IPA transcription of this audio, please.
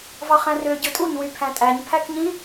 v ɑ χ æ̃ r ø ɟ ɯ tʼ u ɲ w y pʰ æ̃ tʼ æ ɲ pʰ æ k ɲ ĩ

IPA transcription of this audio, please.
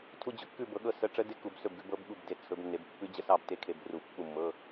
tʰ u˧˥˧ d͡ʑ ɵ˨˦ kː ʉ˥˨ b ɤ˨˦ ɠ ɤ˥˨ s ə˧˥˧ ʈ͡ʂ ə˦˥ d e˦˥ k u˧˩˧ b s ɵ˥˨ b ɡ ʉ˨˦ b ɤ˦˥ b ɠ u˥˨ b d e˥˨ t͡sʰ ɵ˨˦ b nː e˨˦ b pː ʉ˦˥ d͡ʑ ə˦˥ s ɑ˥˨ b t e˦˥ kʰ e˧˩˧ b r u˧˩˧ pː u˥˨ mː ɤ˧˥˧

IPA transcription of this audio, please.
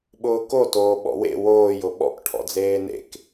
ɓ ʊː k o t oː ɓ ɔ̰ w ḛ w oː j ʊ ɓ ɔ̰ k ʈʰ ɔ̰ d͡z eː n ḛ k

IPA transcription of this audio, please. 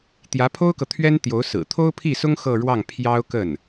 t̪ j ä˧˥ pʰ o˥ ʊ̯ k ɤ˨ t̪ʰ ɥ ɛ˥ n t̪ j o˧˥ ʊ̯ s ɹ̩˨˩ t̪ʰ o˥ ʊ̯ pʰ i˥˩ s ʊ˥ ŋ x ɤ˥˧ ɻ w ɑ˥˩ ŋ pʰ j ɑ˥ ʊ̯ k ə˥˩ n

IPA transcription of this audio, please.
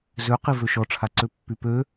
z ø q i v ø ʃ ɔ ʈ͡ʂʰ a ǀ ø pː y p ø

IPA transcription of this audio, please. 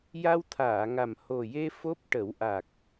j a˧ w t̪ʰ aː˨˩˨ ŋ a˨˩ m h o˨˩ j e˧ f o˦˥ p̚ ʈ ə˨˩˦ w ʔ a˨˩ k̚

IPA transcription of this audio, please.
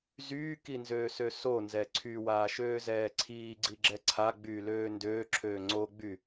z yː k i n z øː s ø s o n z ɛ ǀʰ y w aː ʃ øː z ɛː ǀʰ iː ɡ͡ǀ i ɡ͡ǁ ɛ ǀʰ a ɡ͡b yː l øː n d øː ǁʰ øː ŋ͡ǀ o ɡ͡b y

